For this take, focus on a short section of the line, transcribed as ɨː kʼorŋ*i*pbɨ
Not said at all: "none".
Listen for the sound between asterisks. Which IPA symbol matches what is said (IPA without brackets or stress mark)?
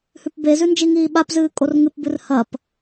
ɨ